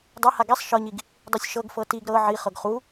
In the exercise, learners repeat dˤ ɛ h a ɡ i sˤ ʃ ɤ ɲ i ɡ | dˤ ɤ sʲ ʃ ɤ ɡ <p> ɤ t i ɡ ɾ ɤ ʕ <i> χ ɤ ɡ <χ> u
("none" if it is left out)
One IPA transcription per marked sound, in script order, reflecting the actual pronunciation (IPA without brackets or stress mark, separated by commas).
f, i, χ